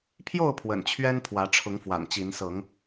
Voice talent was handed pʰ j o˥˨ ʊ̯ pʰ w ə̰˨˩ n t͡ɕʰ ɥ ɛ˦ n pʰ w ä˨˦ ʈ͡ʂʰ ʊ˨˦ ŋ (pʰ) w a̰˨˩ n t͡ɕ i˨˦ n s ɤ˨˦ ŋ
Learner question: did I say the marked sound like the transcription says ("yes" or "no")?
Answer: no